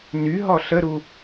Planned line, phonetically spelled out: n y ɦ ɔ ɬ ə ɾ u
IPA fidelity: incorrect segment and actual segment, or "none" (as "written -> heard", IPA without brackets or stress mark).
none